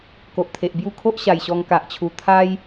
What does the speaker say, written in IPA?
ko˨ʔt̪ʰe˨ʔ bju˥˧kʰo˦ʔɕa˨˩j ɕɔ˧ŋka˨ʔt͡ɕʰu˨˩ t̪ʰa˦j

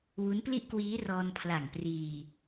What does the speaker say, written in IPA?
wu˦˥npli˥˩ʔkwiː˦˥ rɔː˧npʰla˨˩ŋpriː˧

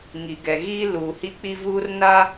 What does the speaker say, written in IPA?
ŋi˨ɡɛ˨ɣiː˦ luː˨hi˦ k͡pi˦vuː˦rna˦

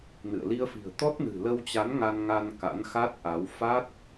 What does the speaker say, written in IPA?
nɨ̰˧˨ə̯ li˧ə̯fi̤˨˩ə̯ t̪ɔ˦˥t̚nɨ̤˨˩ lə˧wt͡ɕa˨˦n ŋa˧nŋa˧n ka̰˧˥nxa˦˥t̚ʔa˨˦w fa˦˥t̚

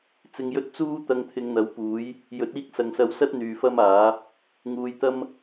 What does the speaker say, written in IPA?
t͡sɪ˧ŋjɵ˥t̚ t͡suː˥t̪ɐ˧ŋ t̪ʰɪ˨˧ŋn̪ɐ˨˥wpuː˨˥j | jɵ˨˥t̚iː˧k̚ sɐ˨ŋsɐ˧wsɐ˥t̚ n̪yː˨fɐ˥maː˨˥ | ŋuː˨˧j t̪ɐ˥m

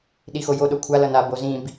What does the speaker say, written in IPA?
ɗixojo ɗokʷʰa lʌna bozĩb

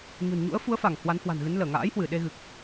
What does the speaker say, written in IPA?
ɲo̤˨˩nɲṵ˧˥ə̯ fu˨˦ə̯fa˧˩ŋ hwa˨˦nhwa̤˨˩nɣɨ˨˦n ləː˧˩ŋa̰ː˧˥jhwɨ˧˩ ɗe˧ɣɨ˨˩k̚

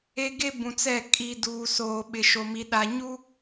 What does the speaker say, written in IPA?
e˦ɡe˦ bũ˨t͡sɛ˦˨ kʼi˦ duː˨soː˨ ɓɪ˨ʃo˨mi˨ ɗa˨ɲu˦

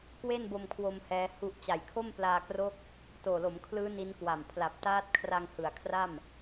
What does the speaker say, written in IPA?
kwe˥˩nbo˧mkʰwo˧m hɛː˦˥hu˥˩ʔ t͡ɕa˨˩jkʰo˥˩m plaː˧kro˦˥k̚ | toː˨˩lo˩˦mkʰlɯː˦˥ ni˦˥nkwa˨˩m pʰla˨˩p̚taː˦˥t̚kʰra˧ŋ hɯ˩˦a̯kʰra˥˩m

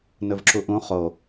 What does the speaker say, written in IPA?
nɵvǁuʔũ χo

